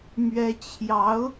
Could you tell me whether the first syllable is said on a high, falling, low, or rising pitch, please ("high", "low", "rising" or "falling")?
high